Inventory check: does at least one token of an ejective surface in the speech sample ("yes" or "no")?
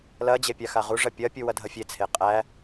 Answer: yes